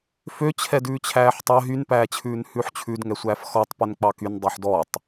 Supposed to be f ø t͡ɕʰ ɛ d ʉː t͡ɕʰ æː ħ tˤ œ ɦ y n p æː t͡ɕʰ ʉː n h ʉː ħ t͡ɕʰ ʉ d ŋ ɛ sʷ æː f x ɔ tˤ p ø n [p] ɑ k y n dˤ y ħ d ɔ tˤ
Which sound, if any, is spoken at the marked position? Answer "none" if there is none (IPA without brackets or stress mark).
k͡p